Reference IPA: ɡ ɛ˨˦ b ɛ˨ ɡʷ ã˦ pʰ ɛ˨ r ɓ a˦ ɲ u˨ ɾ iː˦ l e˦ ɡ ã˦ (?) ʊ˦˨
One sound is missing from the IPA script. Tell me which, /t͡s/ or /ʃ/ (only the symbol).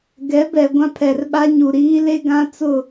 t͡s